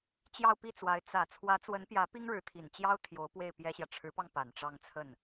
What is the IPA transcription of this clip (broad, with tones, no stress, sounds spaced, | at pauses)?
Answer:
t͡ɕ j ɑ˥˧ ʊ̯ p i˥˩ t͡s w a˧˥ ɪ̯ t͡s ä˨˩ t͡sʰ w ä˧˥ t͡s w ə˧˥ n p j ä˧˥ p i˥ ŋ ɻ ɻ̩˧˥ t̪ʰ i˨˩ n t͡ɕ j ɑ˥ ʊ̯ t̪ʰ j o˧˥ ʊ̯ p w e˥˩ ɪ̯ p j ɛ˥ ɕ j ä˨ ʈ͡ʂʰ ɻ̩˧˥ p ɑ˧ ŋ p a˨˩ n ʈ͡ʂ ɑ˥˧ ŋ t͡sʰ ə˥˩ n